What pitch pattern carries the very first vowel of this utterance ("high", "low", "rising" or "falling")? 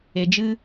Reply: low